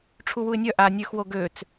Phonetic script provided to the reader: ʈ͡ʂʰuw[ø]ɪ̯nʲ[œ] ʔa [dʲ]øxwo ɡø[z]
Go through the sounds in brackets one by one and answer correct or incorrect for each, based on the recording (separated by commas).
incorrect, correct, incorrect, incorrect